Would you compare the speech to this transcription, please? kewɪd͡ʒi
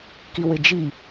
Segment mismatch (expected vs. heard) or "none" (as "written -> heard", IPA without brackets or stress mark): e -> i